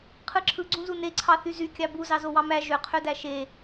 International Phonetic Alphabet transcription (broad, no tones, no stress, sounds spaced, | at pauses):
qʰ ɯ ǁʰ ɯ ɡ͡ǀ ũ z u n e ǀʰ ɑ θ y z y kʲ ɑ b u z ɑ z o w ɑ m æ ʒ ø qʰ ø d æ ʃ e